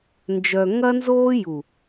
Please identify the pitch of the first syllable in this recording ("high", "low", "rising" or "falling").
low